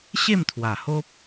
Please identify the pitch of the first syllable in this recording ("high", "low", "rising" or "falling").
falling